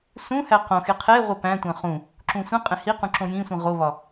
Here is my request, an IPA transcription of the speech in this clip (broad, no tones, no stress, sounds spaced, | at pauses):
s ũ h æ q õ x e qʰ e ʁʷ e p æ̃ tʷ æ̃ χ ũ | ǁ ũ sʷ ĩ qʼ ẽ h i q ũ ǁ õ j ĩ sʷ ĩ ʁ o β ɒ